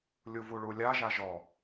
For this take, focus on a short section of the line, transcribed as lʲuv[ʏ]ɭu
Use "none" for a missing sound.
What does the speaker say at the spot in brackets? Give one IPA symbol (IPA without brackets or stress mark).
u